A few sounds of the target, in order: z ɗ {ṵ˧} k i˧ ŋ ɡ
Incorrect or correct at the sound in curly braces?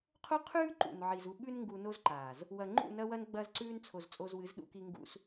correct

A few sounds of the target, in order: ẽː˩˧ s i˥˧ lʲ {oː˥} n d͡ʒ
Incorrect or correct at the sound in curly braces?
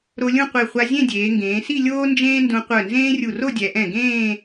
correct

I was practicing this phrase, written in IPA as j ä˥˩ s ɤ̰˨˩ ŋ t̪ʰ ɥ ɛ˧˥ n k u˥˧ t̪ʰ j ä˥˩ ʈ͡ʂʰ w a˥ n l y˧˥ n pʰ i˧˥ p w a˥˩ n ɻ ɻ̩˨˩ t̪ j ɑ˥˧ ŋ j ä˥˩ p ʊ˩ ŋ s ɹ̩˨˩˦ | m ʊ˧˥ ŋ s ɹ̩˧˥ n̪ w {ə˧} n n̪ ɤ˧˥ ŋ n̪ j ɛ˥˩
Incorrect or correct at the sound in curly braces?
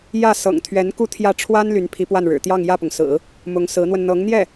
correct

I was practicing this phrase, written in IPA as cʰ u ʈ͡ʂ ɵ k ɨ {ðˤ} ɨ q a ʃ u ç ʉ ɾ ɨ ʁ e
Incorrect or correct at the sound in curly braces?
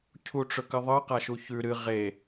correct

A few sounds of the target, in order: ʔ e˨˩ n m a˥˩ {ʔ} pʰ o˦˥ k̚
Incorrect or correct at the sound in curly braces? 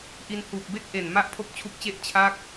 correct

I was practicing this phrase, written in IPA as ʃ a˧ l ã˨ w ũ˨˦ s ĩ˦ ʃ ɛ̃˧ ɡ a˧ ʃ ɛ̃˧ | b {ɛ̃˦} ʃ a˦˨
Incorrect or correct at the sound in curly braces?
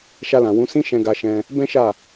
correct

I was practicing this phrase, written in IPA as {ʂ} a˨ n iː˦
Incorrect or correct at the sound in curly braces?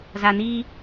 incorrect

